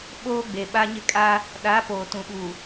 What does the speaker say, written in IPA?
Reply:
ɓoː˦ ɡ͡be˨ɓa˦ɲɪ˦kʼa˦ | ɗa˨˦ poː˨tũ˨ɓu˨

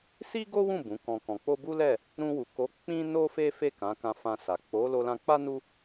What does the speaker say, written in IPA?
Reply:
si˦ɡo˦wũ˦˨ bũ˨˦kɔ̃˧ kɔ̃˨k͡po˧bu˦lɛ˦˨ | ɾũ˧wu˨ko˨˦ k͡pĩ˦no˦fe˦ fe˦˨ kã˨˦kã˧fã˧ sa˨ k͡po˨˦lo˧lã˧k͡pa˦ nu˦

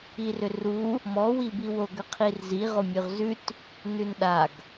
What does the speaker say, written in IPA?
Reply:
irʏru | mɔ wibiwo ɡʏqʰirzi ʁomʲʉʁzʉt | nʉnɗaɡ

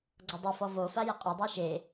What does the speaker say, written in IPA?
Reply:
ɡ͡ǀɔdˤafɔ vofa jɪqʼodˤi ʃe

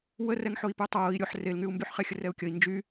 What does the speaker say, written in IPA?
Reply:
wərɛŋħoi̯py tˤoːi̯ ɾʲoħ relŋyu̯mbyħχe xʲərɛu̯kʲəi̯ nd͡ʒy

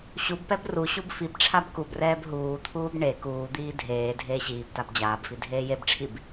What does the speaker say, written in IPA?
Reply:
ɕubpɛb ruɕub fibʈ͡ʂʰab kubrɛːb ɦuːt̪ʰuːb ɳe kuːd̪iː dʱeː dʱeːɕiːbtab d͡ʑaːbfi dʱeːjebʈ͡ʂʰib

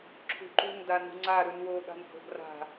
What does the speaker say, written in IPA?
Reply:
ǁʰṳǃṳŋ danṳŋ͡ǀa ɾʉnwo ɠa̤nho̤ɡra̤

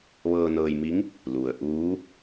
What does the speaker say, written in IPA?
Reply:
ʋɤː˧nɤː˧jmi˧˥ŋ | lu˩ə̯ʔuː˧˥

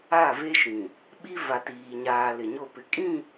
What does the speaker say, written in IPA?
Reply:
a˦˨ve˦ʃĩ˨ | ɓi˦ va˨tiː˨ ɲaː˨ lɪ˨ɲo˦˨ pɪ˨kʼĩ˦˨

